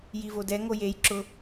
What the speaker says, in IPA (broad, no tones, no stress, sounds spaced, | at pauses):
j i v o d ɛ ŋ o j e j ǁ ʊ